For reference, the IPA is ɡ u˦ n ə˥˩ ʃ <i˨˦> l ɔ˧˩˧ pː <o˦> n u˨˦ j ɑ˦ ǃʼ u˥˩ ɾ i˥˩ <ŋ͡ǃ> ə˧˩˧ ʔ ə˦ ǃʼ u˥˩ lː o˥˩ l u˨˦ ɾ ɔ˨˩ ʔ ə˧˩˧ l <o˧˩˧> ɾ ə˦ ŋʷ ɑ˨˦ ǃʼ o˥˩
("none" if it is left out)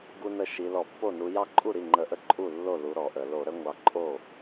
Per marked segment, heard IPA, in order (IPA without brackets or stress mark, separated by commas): i˨˦, o˥˩, ŋ͡ǃ, o˧˩˧